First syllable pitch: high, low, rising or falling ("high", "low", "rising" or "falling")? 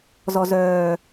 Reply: low